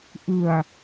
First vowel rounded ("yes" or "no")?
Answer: no